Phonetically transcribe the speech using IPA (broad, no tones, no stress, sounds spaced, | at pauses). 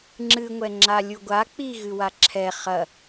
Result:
ŋ͡ǁ ɨ ŋʷ ɛ ŋ͡ǁ a lʲ u ɡʷ a k͡p i ɣ ɨ w a ǁʰ ɛ χ ɐ